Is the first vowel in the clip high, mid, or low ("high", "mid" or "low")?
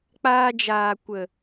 low